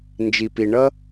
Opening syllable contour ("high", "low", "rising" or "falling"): low